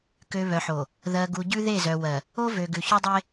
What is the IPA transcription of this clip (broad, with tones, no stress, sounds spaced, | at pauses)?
k ø˨ β œ˨ ħ o˨ | ð ɜ˨ ɡ u˨ ɟ ʉ˦ ð e˦˨ z œ˨ w ɜ˨ | o˦ v ø˨ ɡ ʉ˨ ç ʉ˦ dˤ e˦